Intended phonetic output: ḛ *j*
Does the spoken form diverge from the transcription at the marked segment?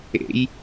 no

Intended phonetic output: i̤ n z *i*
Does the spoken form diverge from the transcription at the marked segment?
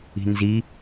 no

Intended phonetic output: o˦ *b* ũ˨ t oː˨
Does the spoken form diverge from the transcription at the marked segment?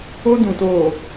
yes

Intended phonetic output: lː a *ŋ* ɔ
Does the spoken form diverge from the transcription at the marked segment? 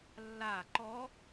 yes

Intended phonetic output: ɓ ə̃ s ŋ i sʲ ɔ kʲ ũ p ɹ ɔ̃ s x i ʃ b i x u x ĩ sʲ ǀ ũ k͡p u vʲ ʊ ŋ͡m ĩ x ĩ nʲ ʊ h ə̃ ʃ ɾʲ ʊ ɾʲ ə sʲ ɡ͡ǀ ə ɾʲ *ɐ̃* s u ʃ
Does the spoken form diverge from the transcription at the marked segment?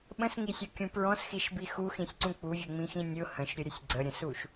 yes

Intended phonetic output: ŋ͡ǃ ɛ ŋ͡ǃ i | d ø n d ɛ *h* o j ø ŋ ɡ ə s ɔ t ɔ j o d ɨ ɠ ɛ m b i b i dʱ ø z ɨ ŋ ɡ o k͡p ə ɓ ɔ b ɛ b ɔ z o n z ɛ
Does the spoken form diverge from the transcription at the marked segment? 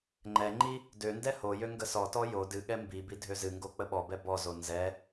no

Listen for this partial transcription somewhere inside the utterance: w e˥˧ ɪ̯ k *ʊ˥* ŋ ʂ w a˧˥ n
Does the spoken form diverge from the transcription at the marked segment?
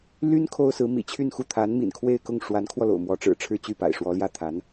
yes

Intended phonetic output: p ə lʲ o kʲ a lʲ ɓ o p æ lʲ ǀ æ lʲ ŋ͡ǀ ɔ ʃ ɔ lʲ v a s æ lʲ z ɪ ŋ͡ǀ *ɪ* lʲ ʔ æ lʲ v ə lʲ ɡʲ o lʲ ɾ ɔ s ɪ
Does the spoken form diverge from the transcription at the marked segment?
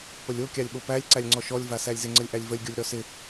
yes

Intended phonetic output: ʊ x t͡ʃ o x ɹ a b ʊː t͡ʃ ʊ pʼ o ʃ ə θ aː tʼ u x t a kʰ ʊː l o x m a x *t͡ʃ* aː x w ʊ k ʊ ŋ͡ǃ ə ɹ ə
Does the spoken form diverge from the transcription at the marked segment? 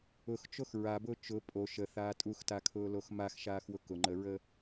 yes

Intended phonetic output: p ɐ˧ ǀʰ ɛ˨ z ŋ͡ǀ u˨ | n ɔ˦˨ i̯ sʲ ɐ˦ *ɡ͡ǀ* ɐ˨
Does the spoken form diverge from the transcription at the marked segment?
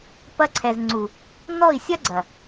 no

